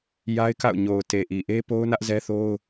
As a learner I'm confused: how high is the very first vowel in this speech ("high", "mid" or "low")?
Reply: low